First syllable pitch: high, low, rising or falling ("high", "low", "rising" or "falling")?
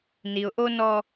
low